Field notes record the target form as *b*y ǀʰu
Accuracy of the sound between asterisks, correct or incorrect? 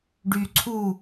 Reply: incorrect